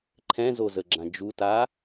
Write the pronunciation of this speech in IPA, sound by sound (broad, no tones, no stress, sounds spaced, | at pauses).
ǃʰ ɛ̃ z o z ə ɡ͡ǁ ã d͡ʒ u t a